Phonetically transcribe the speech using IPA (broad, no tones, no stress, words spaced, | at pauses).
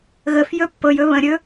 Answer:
ɣəfjɵ pːɤjɵ βə̃ɾʲɵ